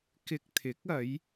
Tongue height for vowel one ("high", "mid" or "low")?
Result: high